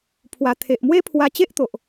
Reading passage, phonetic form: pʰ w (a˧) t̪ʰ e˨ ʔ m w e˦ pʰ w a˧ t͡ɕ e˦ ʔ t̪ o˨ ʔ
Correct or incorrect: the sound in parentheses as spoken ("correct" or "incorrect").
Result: incorrect